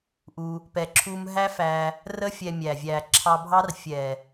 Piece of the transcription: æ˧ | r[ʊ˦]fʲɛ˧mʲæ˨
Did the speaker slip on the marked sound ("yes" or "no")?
yes